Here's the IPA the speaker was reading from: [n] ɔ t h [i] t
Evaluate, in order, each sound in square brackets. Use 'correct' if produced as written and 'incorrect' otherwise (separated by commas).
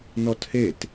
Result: correct, incorrect